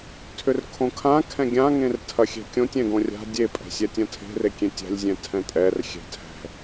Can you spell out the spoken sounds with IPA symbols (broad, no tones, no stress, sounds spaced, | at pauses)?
tʰ ʏ r kʰ õ kʰ ã kʰ ɛ̃ ɡʲ ã ŋ ẽ r tʰ ɐ xʲ ɛ̤ kʲ õ tʲ ɛ̃ ɡ õ rʲ a̤ dʲ e pʼ ɛ̤ sʲ ɛ tʲ ɐ̃ tʰ e̤ r e kʲ ẽ tʲ a̤ lʲ zʲ ɛ̃ tʰ ɛ̃ tʼ ɛ r xʲ ɛ̤ tʰ ɛ̤